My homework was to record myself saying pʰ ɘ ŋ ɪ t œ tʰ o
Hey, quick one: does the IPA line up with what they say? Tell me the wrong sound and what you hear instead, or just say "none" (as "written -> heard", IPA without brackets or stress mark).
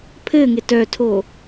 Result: none